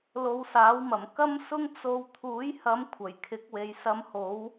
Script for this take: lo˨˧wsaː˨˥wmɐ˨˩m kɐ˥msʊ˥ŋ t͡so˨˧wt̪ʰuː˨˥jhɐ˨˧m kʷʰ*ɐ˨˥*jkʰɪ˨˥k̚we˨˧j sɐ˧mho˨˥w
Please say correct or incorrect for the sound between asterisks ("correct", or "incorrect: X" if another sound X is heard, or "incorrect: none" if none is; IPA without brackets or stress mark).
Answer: incorrect: ɐ˨˩